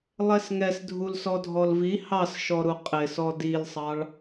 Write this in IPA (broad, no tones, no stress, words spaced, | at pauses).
lˠɛsŋɛs dʱulsɔdʱɔlvi hɑsʃɔɾu qʼɪsɔ dilsˤɑɭ